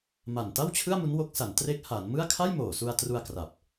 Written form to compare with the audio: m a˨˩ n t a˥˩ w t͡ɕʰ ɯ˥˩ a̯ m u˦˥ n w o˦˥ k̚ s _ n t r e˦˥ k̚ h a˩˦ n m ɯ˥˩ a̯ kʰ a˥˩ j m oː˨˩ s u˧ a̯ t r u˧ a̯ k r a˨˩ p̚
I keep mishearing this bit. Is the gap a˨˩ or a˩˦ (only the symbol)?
a˩˦